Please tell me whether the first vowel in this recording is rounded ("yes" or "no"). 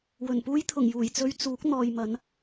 yes